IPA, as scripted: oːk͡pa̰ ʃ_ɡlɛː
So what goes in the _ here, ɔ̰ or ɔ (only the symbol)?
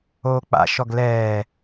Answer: ɔ